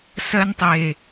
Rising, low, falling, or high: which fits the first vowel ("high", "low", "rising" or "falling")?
high